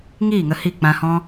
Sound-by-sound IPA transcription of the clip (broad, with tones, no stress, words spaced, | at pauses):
ŋiː˦˨ ŋə˧hi˦˨ k͡pã˧hɔ̃˦